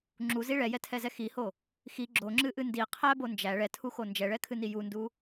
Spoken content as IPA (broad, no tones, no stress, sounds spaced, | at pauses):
ŋ͡ǁ u z i ɭ ɛ j ɛ tʰ ɛ z ɛ x i h o | x i ɡ͡ǁ o ŋ͡ǁ ɨ ʔ ɨ n d i qʰ æ b o n d͡ʒ æ ɭ ɛ tʰ u x o n d͡ʒ ɛ ɭ ɛ kʰ ɨ n i j u n d u